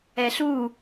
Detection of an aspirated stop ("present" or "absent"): absent